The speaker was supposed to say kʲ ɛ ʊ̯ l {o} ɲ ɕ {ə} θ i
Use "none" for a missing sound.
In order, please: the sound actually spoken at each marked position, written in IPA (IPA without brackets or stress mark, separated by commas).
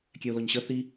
ɔ, ə